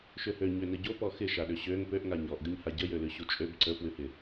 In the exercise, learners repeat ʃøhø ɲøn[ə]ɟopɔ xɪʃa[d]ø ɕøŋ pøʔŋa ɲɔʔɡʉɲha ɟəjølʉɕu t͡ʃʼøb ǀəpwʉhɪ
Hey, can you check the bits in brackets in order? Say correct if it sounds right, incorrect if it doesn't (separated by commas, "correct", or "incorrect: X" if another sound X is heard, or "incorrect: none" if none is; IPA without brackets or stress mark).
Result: correct, incorrect: ɗ